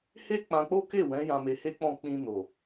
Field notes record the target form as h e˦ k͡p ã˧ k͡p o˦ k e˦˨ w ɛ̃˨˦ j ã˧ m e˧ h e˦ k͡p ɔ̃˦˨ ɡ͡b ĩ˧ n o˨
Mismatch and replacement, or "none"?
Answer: ɡ͡b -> k͡p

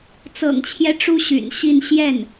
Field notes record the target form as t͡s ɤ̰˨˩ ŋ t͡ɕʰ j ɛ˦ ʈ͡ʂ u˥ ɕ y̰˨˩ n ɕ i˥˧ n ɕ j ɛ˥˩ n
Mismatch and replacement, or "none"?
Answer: none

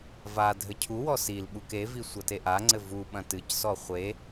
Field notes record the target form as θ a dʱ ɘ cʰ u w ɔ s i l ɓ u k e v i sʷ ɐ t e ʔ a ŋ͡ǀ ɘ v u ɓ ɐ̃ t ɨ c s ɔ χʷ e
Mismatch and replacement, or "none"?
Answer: θ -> v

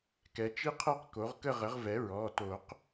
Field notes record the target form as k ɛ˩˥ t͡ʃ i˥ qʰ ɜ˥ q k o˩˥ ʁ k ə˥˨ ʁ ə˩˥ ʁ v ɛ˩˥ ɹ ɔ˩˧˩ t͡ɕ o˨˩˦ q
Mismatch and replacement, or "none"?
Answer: t͡ɕ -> t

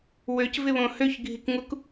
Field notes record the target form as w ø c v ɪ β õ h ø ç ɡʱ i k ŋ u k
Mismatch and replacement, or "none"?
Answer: none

